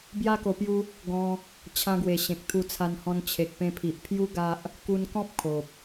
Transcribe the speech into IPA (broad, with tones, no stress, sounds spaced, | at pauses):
b j a˦ k o˧ p j u˦ | ɡ ɔ̃˧ | t͡ɕʰ ã˧ ɡ w e˨˩ ɕ ẽ˨ k̚ t̪ʰ u˧ t͡sʰ a˧ n h ɔ̃˧ n t͡ɕʰ e˨ k̚ p ẽ˧ pʰ i˨ ʔ pʰ j u˦ ɡ a˦ ʔ | k u˧ n k ɔ̃˦ p̚ kʰ o˨ p̚